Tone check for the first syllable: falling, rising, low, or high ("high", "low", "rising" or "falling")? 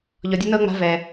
low